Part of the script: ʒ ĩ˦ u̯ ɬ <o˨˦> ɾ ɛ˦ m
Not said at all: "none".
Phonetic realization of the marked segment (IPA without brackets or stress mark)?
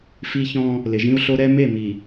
o˦